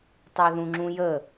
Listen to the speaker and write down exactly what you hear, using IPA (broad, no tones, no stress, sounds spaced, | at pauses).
tˤ a ð ũ ŋ͡ǁ ũ j ə